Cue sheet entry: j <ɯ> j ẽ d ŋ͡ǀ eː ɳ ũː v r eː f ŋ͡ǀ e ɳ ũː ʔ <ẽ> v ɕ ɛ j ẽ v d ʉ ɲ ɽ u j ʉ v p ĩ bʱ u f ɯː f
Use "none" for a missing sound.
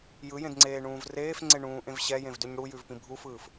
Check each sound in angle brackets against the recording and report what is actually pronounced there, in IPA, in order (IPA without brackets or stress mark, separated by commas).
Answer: ɯ, ẽ